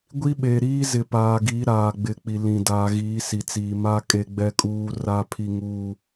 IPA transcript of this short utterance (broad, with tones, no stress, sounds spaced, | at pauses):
ɡʷ i˦ ɓ e˨ ɾ iː˦ z ɪ˨ p aː˨ ɡ i˨˦ ɾ aː˨ ɡ͡b ɪ˨˦ k͡p i˨ l ĩ˨ d aː˨ ɣ iː˨˦ s i˨ t͡s iː˨ m a˦ kʼ e˦ ɡ͡b ɛ˦ kʼ uː˦ r a˦ pʰ i˦ ŋ uː˦